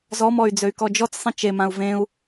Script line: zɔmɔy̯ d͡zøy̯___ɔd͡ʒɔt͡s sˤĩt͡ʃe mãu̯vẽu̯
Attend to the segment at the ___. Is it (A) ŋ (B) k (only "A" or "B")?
B